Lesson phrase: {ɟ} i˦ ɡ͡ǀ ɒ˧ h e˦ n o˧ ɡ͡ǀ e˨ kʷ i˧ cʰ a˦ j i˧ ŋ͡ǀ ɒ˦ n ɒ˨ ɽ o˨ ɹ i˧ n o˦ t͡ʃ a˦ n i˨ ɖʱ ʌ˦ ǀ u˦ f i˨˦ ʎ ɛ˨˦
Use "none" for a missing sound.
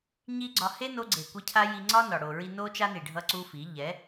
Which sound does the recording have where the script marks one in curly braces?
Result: ɲ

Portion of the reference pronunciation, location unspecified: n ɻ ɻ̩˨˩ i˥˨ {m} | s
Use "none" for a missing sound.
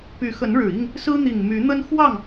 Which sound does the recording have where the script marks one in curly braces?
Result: ŋ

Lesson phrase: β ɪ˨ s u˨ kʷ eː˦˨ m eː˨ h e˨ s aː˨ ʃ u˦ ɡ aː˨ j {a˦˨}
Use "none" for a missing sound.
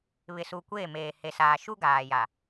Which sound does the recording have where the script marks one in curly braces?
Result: a˨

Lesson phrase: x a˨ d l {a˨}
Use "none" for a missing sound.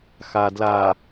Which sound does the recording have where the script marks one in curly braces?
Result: a˨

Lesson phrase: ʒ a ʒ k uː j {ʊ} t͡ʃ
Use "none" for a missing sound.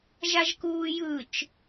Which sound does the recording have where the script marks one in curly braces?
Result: ɯ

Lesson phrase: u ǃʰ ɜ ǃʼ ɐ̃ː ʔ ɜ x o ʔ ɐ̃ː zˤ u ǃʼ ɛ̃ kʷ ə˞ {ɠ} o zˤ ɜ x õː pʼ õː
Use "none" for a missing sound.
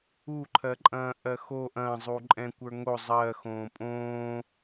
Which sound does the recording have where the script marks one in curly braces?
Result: ŋ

